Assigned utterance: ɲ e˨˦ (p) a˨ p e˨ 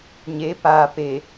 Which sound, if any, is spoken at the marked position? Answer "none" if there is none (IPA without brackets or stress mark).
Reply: p